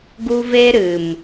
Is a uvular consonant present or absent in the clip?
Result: absent